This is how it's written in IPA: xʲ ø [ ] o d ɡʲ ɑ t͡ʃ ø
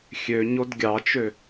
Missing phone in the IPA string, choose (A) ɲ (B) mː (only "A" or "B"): A